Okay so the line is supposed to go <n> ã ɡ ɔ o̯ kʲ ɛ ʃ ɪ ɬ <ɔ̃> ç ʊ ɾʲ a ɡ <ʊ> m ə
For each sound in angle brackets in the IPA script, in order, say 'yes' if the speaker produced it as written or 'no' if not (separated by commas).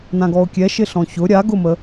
yes, yes, yes